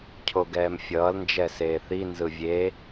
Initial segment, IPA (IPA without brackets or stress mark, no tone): cʰ